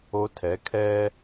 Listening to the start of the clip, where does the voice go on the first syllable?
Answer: rising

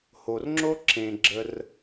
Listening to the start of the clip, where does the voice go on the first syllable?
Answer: low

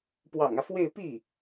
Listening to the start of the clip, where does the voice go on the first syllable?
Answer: low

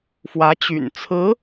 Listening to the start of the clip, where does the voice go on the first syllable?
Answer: rising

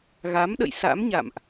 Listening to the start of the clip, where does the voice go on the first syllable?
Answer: rising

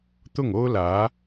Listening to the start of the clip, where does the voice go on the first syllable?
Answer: falling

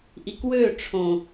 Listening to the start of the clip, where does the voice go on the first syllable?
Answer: low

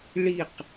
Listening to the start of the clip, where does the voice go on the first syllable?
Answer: falling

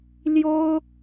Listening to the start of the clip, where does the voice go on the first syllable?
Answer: high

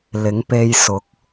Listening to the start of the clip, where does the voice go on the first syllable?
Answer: rising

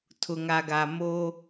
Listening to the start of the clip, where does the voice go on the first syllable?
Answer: low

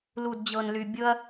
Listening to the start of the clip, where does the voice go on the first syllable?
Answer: low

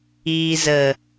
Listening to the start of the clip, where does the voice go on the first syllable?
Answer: low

